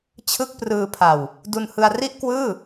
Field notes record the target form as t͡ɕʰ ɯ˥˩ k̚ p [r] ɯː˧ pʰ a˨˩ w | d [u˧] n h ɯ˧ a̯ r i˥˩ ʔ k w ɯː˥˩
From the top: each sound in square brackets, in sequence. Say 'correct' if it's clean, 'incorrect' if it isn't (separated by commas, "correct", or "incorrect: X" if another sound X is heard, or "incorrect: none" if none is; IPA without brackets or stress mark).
correct, correct